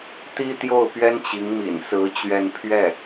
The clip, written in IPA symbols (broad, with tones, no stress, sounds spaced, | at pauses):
t̪ i˥ t̪ j o˥˩ ʊ̯ p ɥ ɛ˥ n t͡ɕ i˧˥ ŋ m ḭ˨˩ n s ɹ̩˧˥ t͡ɕ ɥ ɛ˥˧ n pʰ ɥ ɛ˥˩